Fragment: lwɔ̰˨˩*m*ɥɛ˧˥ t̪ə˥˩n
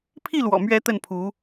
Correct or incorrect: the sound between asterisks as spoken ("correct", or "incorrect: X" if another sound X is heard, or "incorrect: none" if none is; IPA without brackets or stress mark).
correct